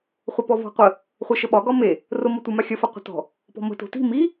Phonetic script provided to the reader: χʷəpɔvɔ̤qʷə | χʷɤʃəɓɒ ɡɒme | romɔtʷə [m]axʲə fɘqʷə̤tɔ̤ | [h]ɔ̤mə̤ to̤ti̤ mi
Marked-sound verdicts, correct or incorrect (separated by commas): correct, incorrect